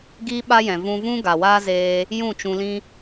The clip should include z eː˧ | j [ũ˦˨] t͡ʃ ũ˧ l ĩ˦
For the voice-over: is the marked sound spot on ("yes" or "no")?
yes